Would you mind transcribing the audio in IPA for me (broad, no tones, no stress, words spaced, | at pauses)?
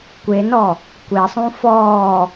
kʷenɔ | kʷesˤũ fɔː